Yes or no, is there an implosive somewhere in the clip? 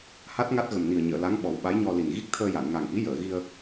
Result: yes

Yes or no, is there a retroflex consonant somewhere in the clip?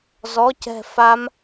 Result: no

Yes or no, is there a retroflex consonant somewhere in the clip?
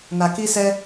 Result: no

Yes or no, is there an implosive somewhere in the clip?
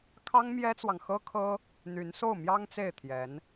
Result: no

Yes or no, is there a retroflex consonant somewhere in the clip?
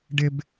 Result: yes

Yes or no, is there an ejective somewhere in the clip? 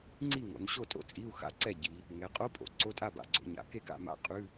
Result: yes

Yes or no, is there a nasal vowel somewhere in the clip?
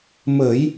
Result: no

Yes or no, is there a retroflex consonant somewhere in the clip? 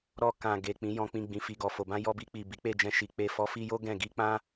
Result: no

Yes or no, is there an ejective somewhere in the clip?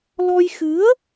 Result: no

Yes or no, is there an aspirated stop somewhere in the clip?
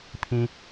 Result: yes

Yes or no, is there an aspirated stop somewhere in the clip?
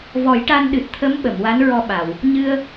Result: yes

